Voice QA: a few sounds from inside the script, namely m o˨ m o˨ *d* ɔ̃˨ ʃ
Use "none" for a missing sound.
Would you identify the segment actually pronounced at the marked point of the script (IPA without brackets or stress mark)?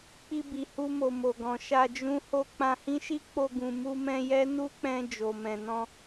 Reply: ɡ